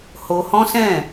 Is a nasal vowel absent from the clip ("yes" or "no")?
no